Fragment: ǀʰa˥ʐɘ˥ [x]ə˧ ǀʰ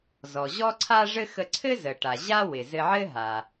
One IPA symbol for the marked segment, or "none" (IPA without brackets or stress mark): x